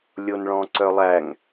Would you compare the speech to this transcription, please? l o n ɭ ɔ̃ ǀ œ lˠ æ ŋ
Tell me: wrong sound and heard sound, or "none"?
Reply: l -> lʲ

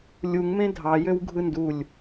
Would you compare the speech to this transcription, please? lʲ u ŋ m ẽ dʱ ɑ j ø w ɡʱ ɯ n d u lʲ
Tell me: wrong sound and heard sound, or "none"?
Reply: none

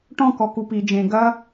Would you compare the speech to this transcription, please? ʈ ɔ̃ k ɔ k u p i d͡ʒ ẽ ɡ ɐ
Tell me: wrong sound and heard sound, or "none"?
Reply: none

